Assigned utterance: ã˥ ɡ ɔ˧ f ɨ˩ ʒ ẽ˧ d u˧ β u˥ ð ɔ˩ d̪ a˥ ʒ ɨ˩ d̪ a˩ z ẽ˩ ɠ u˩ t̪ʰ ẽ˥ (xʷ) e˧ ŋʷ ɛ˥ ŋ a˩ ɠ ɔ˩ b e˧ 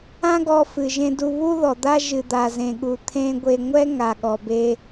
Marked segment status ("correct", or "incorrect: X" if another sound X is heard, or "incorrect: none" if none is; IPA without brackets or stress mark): incorrect: ɡʷ